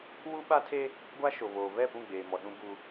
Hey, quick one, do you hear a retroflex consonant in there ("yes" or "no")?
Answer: no